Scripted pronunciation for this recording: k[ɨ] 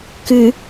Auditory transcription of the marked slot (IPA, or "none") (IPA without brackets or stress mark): ɨ